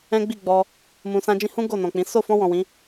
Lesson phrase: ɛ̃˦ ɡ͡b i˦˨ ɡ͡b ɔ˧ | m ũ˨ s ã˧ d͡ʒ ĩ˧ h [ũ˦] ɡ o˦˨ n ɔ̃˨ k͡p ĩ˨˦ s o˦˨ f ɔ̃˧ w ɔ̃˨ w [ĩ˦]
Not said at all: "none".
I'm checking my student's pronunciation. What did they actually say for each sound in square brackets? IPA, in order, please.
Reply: ũ˦, ĩ˨˦

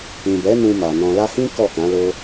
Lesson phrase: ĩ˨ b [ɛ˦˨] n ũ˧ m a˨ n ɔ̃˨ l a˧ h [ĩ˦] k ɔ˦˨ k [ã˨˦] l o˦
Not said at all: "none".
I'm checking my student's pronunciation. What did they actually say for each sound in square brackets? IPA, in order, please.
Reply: ɛ˨˦, ĩ˦, ã˨˦

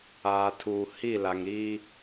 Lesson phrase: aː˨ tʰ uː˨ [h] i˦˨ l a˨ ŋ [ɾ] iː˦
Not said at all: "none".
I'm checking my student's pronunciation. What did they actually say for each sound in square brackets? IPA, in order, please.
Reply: h, ɾ

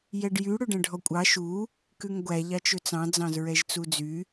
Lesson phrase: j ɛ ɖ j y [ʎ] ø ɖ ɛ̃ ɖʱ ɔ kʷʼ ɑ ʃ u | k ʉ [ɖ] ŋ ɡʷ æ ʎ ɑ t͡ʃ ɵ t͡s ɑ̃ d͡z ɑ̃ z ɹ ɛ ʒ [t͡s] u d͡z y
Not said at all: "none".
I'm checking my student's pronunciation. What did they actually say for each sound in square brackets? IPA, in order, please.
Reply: ɽ, none, t͡s

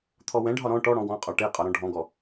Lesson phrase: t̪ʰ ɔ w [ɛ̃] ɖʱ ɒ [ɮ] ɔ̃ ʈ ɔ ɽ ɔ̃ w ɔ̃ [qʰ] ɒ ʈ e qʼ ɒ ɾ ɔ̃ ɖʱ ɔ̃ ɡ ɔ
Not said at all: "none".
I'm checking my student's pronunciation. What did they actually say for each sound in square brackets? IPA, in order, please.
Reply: ɛ̃, ɾ, qʼ

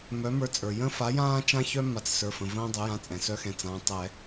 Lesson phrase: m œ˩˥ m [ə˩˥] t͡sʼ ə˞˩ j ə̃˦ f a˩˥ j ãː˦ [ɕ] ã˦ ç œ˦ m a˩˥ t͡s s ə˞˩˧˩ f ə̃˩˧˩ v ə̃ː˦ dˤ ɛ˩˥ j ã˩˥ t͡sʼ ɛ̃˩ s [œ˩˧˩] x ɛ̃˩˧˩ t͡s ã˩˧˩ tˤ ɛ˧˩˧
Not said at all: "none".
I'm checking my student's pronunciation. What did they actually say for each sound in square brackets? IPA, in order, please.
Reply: ə˞˩˥, t͡ʃ, œ˦

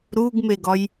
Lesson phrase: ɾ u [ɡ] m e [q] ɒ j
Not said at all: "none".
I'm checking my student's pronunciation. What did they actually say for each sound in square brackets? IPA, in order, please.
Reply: ɡ, ɡ

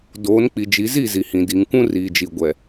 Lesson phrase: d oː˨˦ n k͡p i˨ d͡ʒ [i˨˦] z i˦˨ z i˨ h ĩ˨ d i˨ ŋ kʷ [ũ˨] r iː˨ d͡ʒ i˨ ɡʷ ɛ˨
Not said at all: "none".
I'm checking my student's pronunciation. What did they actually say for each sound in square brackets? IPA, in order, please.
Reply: i˨˦, ũ˦

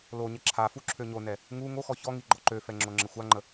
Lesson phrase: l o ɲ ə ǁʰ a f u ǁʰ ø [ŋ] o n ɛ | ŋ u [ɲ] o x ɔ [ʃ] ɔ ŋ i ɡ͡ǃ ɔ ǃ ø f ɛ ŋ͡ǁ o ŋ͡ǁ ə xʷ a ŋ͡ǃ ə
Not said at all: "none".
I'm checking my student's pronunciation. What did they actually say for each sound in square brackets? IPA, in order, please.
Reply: ɲ, ŋ, ç

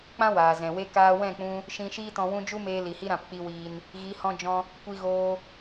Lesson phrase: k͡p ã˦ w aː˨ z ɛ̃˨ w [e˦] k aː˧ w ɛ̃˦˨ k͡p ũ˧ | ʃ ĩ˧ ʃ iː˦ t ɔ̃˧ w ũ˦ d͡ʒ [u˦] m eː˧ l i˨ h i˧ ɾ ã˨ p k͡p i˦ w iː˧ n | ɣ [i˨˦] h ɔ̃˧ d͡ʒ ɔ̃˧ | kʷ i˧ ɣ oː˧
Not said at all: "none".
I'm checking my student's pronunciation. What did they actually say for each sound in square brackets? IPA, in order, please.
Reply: e˦, u˦, i˨˦

